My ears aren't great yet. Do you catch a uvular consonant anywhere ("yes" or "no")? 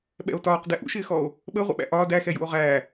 yes